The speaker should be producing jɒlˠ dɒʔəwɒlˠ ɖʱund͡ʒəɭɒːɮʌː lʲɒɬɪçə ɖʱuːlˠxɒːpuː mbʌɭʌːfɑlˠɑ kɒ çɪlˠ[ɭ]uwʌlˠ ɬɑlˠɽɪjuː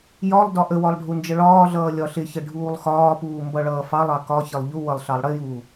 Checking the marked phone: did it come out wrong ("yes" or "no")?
yes